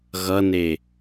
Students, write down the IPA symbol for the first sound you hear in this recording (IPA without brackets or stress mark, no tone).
ɣ